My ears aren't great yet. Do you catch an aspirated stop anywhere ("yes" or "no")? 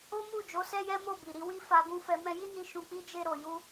no